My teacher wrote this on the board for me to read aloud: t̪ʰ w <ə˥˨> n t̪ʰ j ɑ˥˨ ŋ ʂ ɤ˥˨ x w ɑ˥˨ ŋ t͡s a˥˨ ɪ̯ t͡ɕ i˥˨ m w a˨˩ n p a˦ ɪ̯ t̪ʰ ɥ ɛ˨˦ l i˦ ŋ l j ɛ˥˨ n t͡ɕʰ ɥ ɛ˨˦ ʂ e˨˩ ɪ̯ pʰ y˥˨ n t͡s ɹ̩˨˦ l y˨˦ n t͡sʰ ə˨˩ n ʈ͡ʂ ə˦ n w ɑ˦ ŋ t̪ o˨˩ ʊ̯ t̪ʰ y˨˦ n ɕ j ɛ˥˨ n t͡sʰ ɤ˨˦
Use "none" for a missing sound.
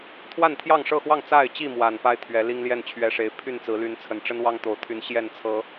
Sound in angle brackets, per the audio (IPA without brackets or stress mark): a˥˨